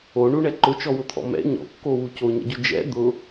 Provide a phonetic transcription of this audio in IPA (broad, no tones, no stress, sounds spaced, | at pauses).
o ɳ u ɳ ɛ ǃ ʊ t͡ʃ ɔ w ʊ t̪ʰ ɔ̰ m ɛ̰ ɲ ɔ̰ kː o w u c o ɲ ɛ̰ ɟ ʊ d͡ʒ ɛ̰ d̪ ʊ